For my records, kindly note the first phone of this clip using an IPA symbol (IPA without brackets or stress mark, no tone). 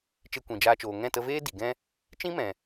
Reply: t͡ʃ